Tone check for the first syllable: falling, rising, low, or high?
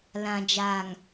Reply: low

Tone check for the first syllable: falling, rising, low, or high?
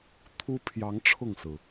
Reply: high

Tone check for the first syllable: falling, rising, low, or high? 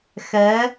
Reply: rising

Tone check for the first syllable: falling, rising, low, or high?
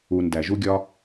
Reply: low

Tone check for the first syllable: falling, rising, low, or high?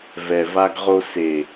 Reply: low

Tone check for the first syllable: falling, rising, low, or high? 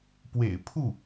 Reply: low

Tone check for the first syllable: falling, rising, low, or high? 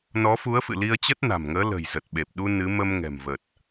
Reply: rising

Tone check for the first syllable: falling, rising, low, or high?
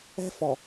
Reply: high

